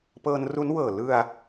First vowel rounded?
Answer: no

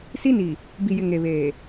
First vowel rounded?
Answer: no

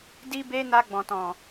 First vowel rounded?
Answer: no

